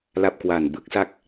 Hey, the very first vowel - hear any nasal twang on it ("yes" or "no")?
no